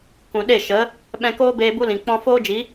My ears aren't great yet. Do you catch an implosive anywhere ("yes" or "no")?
yes